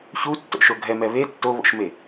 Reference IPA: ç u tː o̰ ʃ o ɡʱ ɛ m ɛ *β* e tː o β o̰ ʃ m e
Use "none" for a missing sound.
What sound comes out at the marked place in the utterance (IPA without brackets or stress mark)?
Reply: β